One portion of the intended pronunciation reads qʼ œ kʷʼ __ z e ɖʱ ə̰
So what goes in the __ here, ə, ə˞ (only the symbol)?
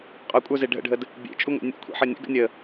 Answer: ə˞